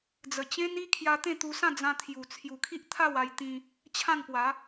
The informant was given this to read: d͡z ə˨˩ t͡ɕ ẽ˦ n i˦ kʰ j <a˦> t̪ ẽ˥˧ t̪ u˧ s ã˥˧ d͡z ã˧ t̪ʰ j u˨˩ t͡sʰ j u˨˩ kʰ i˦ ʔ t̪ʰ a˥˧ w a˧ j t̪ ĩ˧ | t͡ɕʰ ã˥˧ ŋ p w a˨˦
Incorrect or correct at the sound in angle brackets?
incorrect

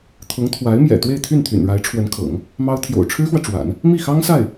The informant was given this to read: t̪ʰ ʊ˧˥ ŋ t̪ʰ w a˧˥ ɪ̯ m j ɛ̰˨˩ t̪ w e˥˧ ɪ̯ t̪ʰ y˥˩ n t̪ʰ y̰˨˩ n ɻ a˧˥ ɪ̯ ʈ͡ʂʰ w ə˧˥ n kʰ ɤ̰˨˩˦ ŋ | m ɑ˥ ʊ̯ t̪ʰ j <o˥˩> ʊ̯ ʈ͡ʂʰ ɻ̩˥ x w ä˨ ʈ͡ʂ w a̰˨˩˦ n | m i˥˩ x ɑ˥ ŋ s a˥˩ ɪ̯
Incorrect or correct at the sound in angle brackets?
incorrect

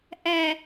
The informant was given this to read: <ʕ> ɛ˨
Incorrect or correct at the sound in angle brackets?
incorrect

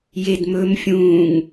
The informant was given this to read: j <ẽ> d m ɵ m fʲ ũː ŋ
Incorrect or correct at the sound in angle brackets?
incorrect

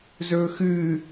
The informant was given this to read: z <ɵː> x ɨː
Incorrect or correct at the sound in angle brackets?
correct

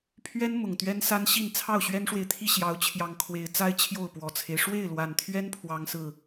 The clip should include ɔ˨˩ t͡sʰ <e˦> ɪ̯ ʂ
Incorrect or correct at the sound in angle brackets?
correct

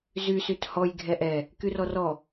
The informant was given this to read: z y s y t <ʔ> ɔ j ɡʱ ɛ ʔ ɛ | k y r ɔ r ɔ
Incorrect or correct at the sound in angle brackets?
incorrect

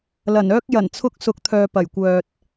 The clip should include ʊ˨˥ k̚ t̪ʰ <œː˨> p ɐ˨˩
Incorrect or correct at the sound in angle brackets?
correct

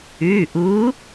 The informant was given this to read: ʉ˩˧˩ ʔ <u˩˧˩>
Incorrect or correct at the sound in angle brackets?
incorrect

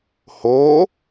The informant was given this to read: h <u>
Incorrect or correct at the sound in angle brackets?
incorrect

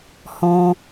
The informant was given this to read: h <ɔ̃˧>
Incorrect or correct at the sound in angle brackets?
correct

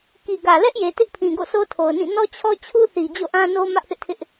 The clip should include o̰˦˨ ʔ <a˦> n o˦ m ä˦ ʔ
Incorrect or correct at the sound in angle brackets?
incorrect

